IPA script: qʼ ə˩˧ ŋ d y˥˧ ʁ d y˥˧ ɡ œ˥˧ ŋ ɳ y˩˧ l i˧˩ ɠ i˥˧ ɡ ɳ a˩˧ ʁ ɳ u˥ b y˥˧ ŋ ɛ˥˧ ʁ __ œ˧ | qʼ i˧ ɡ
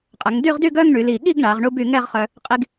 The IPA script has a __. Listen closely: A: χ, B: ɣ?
A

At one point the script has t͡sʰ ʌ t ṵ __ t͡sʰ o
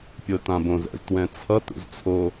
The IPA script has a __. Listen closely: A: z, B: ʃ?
A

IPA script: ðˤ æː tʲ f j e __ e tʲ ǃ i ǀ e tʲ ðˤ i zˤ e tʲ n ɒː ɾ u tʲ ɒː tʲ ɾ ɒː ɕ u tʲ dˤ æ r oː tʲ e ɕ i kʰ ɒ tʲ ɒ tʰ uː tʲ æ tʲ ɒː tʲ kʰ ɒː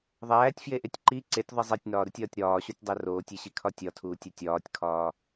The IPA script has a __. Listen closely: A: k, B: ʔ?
B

